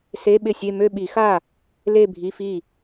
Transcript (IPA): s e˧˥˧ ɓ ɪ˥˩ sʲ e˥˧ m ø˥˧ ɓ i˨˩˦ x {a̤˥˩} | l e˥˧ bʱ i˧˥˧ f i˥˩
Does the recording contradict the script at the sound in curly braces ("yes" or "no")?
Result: yes